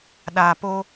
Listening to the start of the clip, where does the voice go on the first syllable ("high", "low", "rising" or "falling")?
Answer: low